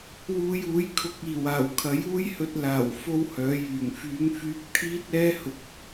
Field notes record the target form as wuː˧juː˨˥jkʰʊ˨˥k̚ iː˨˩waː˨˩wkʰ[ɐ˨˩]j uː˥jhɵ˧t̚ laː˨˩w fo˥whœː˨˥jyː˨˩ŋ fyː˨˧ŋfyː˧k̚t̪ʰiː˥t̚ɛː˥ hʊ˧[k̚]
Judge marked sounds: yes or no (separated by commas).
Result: no, yes